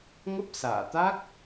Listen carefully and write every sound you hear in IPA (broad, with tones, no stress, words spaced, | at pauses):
ŋə˦˥p̚sa̰ː˧˨t̪a˦˥k̚